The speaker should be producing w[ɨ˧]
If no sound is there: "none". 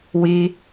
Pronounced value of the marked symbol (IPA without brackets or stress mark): i˧